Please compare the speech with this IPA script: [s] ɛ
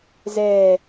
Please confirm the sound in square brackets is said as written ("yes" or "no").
no